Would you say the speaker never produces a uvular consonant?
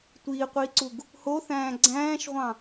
no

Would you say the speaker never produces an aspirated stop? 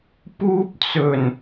yes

